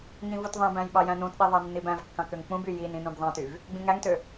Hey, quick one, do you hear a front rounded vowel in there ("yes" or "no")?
yes